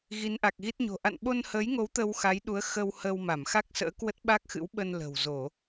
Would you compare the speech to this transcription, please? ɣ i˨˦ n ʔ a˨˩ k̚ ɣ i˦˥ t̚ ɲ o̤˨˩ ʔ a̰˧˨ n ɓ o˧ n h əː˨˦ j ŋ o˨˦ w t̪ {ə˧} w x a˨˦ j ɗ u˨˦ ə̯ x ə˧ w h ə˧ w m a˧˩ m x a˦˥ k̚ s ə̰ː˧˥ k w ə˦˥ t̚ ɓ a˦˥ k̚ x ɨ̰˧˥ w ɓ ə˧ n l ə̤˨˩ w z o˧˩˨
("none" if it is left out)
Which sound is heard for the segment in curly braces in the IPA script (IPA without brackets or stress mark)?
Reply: ə˧